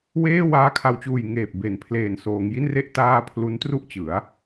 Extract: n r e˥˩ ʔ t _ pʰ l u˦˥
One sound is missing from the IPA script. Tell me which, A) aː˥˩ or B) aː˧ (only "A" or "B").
A